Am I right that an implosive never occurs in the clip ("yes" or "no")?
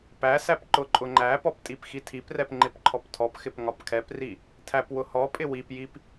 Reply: yes